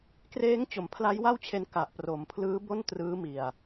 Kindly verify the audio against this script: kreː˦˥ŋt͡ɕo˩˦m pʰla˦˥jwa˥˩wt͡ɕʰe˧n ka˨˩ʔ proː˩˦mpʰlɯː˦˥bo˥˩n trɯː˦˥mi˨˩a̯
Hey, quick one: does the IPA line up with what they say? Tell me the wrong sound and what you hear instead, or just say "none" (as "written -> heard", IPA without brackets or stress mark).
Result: oː˩˦ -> o˩˦